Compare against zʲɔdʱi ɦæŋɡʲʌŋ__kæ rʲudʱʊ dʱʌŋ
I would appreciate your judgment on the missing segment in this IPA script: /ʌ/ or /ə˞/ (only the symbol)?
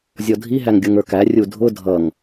ə˞